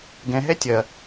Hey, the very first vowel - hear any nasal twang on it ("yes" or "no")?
yes